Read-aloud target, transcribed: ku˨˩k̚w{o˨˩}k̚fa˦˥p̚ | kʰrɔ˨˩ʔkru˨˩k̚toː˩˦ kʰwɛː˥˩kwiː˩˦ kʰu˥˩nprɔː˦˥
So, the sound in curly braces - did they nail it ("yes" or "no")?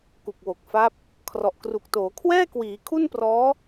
yes